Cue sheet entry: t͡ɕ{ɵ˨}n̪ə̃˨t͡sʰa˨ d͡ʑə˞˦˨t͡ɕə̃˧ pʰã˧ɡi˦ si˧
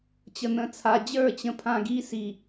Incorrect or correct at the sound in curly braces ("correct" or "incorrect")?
incorrect